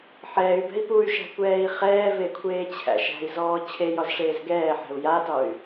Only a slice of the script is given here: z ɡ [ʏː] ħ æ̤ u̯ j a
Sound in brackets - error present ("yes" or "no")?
yes